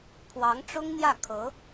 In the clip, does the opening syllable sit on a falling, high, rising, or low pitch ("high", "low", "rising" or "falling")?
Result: rising